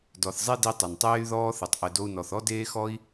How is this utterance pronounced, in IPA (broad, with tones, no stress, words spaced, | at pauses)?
dɔ˨θzˤi˦di˧ tˤɘ˨ntˤeː˦y̯ðɔː˦θɨ˨tˤ ʔɘ˨do˧u̯nɔ˨θ ɔ˦deː˦xɔ˦i̯